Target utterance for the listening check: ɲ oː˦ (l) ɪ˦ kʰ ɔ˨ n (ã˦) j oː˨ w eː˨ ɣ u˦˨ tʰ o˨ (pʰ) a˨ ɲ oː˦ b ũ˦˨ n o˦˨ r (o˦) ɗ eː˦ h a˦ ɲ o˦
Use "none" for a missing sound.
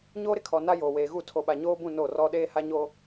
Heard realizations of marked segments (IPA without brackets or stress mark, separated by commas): ɾ, a˦, ɓ, ɔ˦